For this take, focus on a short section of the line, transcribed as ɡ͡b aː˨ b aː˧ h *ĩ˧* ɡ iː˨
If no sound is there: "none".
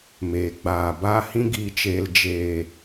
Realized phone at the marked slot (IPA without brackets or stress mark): ĩ˧